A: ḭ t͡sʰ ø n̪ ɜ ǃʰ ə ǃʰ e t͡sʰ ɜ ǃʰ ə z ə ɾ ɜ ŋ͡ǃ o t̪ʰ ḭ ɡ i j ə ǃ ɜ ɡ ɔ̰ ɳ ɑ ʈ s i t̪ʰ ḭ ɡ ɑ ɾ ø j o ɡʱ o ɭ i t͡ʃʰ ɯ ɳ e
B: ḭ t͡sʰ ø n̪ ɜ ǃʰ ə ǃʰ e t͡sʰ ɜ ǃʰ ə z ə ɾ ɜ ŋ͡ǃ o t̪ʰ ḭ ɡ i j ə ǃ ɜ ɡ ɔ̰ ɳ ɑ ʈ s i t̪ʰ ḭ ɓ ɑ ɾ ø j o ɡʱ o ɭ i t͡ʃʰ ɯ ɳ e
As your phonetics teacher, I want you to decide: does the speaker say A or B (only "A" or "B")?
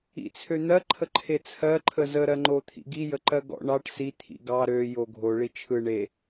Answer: A